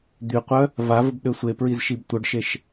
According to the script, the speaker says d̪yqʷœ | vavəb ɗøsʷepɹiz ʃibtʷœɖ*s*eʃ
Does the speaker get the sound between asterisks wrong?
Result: yes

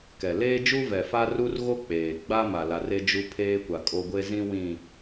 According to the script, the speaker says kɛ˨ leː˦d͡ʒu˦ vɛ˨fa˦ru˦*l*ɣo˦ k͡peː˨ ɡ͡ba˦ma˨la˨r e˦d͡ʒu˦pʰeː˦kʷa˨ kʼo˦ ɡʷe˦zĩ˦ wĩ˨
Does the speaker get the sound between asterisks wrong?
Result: yes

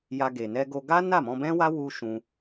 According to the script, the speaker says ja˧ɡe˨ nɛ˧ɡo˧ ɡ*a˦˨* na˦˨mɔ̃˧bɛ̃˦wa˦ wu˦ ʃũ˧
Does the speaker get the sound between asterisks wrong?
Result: yes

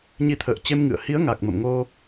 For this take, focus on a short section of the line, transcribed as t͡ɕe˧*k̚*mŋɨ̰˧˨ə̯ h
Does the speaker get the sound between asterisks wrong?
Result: yes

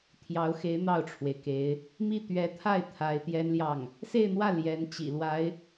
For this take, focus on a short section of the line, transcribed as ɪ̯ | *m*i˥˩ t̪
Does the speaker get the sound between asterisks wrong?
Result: no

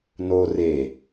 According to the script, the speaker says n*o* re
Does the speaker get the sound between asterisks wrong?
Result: no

